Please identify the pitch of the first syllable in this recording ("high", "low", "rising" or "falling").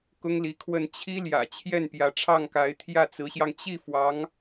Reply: high